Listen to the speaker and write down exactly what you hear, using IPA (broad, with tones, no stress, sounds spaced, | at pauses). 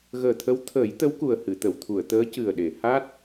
ɣ əː˨˩ t̪ʰ ə˧˥ w t̪ʰ əː˨˩˦ j t̪ ə˧˥ w k u˨˩ ə̯ h ɨ˨˩˨ t̪ ə˨˩˨ w t̪ʰ u˨˩˨ ə̯ t̪ əː˧˥ c ɨ˨˩ ə̯ ɗ e˨˩˨ h a˦˥ t̚